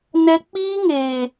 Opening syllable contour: high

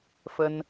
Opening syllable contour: high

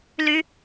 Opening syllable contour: rising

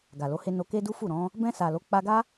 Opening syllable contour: low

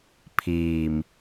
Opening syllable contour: low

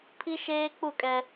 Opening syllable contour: high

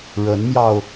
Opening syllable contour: rising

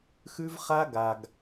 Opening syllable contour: high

